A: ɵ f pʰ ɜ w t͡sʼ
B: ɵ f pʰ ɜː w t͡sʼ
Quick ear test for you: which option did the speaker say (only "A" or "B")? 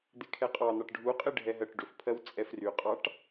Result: A